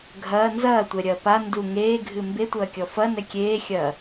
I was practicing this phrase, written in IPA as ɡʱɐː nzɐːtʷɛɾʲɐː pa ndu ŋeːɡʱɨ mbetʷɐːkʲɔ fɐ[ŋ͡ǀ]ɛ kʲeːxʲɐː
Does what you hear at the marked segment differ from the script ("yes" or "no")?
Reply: yes